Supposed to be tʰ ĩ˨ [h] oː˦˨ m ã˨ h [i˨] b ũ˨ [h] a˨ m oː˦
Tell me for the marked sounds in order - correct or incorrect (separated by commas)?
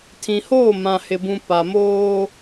correct, incorrect, incorrect